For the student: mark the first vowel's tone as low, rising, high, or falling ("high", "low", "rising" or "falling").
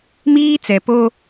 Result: high